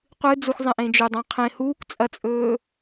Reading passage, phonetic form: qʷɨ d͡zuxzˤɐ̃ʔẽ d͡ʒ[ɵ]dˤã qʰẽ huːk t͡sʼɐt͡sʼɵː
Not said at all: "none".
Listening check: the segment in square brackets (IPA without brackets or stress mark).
ɵ